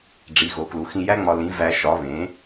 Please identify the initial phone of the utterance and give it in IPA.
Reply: ɖ͡ʐ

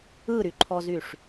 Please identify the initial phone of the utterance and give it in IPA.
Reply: ɯ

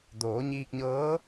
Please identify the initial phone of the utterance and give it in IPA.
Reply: d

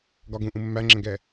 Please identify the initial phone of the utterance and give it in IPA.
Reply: ɡ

